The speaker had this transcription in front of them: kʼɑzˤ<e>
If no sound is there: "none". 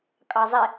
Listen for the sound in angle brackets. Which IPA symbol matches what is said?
e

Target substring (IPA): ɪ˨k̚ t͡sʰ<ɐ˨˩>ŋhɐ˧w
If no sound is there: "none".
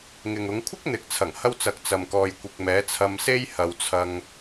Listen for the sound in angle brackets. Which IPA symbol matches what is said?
ɐ˨˩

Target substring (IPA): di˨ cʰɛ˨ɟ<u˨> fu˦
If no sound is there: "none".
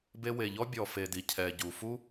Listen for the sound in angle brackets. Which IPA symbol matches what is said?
u˨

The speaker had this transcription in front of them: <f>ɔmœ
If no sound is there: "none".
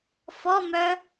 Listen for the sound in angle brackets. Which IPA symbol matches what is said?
f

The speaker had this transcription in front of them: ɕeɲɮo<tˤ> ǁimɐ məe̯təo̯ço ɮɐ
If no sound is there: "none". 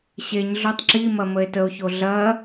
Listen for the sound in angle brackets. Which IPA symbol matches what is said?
tˤ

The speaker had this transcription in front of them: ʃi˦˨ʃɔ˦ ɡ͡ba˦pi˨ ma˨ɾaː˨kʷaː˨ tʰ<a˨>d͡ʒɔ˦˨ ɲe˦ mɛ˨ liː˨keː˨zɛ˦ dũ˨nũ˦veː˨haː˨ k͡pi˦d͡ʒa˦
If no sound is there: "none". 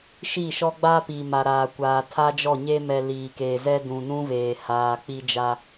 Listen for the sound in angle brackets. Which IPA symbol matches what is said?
a˦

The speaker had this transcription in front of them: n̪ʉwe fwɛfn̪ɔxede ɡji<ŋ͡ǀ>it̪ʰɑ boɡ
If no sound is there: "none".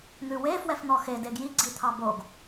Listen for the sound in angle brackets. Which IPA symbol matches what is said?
ɡ͡ǀ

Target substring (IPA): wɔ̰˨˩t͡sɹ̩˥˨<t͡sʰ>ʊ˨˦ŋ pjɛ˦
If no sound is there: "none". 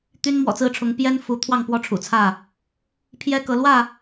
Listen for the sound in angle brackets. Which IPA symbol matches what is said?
ʈ͡ʂʰ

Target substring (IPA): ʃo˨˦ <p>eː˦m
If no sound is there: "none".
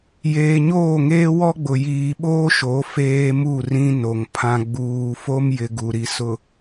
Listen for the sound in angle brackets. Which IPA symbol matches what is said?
f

